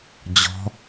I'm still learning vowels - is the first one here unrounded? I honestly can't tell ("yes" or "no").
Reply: no